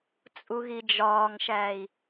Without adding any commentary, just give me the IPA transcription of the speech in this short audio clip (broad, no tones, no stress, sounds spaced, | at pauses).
t͡sʼ u ɣ i d͡ʒ ɒː ŋ ʃ æː i̯